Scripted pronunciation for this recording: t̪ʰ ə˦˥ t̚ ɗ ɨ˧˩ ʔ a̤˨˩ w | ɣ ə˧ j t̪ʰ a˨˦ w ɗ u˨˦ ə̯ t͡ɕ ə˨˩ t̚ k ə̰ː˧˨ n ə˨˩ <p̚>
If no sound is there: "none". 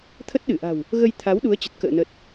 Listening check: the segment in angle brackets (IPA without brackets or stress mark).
t̚